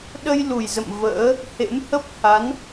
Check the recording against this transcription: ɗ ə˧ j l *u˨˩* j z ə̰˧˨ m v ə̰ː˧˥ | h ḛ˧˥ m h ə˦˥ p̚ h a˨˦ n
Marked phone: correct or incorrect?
correct